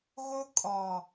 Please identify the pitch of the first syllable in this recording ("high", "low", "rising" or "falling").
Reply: high